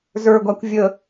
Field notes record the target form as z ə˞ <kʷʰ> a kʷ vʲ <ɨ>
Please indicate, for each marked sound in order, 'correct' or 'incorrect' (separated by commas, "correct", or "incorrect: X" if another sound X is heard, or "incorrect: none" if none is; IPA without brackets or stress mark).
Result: incorrect: ɡʷ, incorrect: ə